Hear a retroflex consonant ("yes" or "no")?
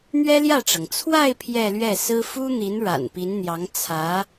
yes